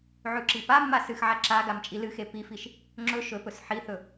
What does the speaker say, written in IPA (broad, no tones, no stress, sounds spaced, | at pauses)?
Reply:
ʕ ʉ ǁ i p a mː a s ɨ x ʕ a ǁ a ɡ a m t͡ʃʼ i l ɨ x e p i f i ʃ | ŋ͡ǁ ɵ ʃ ɵ p ɵ s ħ i θ ɵ